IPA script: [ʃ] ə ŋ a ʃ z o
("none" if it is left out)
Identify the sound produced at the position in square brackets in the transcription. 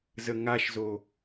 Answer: z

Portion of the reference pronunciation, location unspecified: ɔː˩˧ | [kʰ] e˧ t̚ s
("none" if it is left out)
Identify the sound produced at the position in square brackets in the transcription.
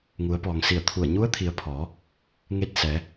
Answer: ŋ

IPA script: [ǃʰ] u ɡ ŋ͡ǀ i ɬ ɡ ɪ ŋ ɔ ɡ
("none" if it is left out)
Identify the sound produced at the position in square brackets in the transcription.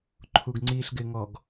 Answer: ǃʰ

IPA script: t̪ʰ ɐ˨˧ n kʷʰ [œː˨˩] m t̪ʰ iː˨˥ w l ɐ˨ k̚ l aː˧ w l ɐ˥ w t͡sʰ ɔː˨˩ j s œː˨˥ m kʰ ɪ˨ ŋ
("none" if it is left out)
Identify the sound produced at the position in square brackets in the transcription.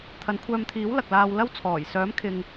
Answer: œː˧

